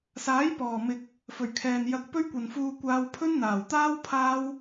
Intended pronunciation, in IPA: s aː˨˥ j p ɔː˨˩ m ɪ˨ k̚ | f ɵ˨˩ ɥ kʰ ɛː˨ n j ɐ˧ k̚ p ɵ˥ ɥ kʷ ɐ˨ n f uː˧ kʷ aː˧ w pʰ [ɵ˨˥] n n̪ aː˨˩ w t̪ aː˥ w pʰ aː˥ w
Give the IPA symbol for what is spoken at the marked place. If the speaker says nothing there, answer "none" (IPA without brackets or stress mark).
ɵ˥